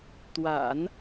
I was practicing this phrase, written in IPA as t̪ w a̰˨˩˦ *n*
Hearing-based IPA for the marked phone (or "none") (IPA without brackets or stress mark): n